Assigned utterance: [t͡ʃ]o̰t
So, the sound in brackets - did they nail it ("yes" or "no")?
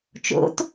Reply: yes